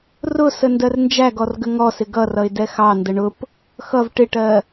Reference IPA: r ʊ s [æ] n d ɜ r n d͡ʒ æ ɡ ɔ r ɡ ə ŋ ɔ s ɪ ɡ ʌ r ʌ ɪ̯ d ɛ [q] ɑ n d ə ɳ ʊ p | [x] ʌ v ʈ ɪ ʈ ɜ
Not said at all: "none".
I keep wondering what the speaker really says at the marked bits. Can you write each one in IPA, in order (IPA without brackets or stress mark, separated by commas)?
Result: ə, x, x